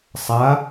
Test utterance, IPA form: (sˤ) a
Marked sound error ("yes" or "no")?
no